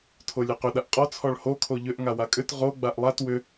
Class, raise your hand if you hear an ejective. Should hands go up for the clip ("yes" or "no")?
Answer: yes